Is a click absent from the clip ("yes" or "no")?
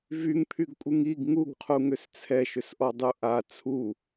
yes